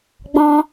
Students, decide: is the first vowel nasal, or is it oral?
nasal